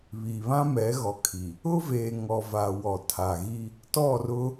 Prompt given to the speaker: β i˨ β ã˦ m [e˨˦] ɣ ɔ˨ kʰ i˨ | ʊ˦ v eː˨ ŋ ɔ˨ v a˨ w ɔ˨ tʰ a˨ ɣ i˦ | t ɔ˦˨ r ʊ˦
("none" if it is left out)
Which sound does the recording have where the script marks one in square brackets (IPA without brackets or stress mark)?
ɛ˨˦